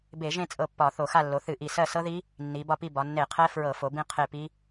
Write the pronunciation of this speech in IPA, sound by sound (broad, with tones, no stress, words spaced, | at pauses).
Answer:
be˧˩˧ʒẽ˦˨ t͡sʼɤ˦˨pːɒ˧˩˧θo˧˩˧ xa˦˨lːo˩˧ θɨ˧˩˧ʔi˨˩ sɜ˦˨sɤ˦˥ði˦˥ | nːi˩˧bɒ˦˨pi˦˨bɒ˩˧ nːe˧˩˧qʰɛ˦˥ fɹɤ˧˩˧fo˩˧bĩ˦˨ qʰe˦˨ pi˦˥